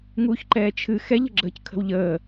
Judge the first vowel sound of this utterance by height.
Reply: high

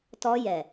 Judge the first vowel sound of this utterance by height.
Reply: mid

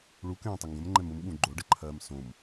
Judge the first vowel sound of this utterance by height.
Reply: high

